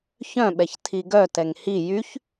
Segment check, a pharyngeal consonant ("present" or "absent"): absent